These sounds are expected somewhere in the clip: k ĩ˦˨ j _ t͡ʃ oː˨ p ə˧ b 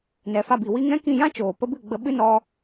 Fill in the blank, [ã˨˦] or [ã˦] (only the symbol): ã˦